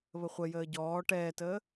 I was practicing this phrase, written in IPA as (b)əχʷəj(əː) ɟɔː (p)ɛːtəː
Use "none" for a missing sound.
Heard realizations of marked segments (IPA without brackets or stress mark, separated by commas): β, əː, ʈ